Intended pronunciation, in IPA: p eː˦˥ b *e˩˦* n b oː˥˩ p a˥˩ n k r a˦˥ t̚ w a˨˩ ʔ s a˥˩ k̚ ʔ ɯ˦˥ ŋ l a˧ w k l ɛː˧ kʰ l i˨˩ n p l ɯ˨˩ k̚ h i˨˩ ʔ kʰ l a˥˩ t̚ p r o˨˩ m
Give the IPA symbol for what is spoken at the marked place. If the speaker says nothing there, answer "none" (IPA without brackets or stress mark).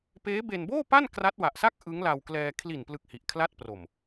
e˧